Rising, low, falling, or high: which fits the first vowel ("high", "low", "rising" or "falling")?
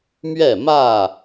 falling